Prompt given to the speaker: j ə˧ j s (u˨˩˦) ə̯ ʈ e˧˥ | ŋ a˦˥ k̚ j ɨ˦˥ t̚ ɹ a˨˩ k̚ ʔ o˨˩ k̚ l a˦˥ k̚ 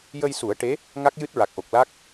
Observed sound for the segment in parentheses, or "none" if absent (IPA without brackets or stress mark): u˨˩˦